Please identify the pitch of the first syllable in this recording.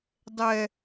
low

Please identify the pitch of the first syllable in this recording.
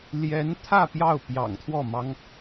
rising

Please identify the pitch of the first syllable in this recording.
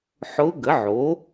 rising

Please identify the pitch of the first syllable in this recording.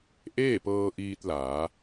falling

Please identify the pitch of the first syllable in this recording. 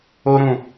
high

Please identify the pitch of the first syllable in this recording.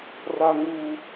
high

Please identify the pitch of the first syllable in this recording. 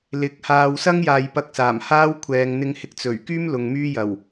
rising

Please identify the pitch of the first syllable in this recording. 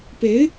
rising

